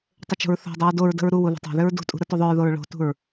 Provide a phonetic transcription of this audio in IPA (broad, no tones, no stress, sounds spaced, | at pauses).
tˤ ʏ t͡ʃ o̤ ɹ θ o̤ dˤ ʏ ɹ d o ɹ d ə̤ ɹ ɾ u w u ð ə̤ tˤ o̤ ð ʏ ɹ d ṳ tʼ ṳ ɾ ə t u ðˤ ʏ ɹ ð o ɹ ɭ o̤ t ṳ ɹ